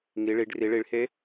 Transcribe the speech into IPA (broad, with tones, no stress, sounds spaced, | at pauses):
ŋ i˩˧ ɭ i˩˧ ɖ r i˩˧ ɭ i˩˧ ɭ h e˧˥